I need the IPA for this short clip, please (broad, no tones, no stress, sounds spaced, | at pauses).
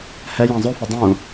h ɛ j ã zˤ o f ʌ dˤ ũ